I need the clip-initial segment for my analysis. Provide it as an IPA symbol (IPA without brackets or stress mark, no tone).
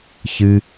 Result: ç